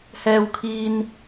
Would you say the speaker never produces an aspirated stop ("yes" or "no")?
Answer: no